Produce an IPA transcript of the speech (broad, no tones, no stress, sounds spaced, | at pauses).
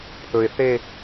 pʰ ɵ ɪ̯ θ e